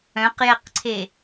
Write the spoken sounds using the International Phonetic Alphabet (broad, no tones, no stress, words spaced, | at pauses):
œ̃qjɛqǀʰe